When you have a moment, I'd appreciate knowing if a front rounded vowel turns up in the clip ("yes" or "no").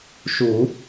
no